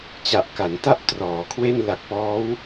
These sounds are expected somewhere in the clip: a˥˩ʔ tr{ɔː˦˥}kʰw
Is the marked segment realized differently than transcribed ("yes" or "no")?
yes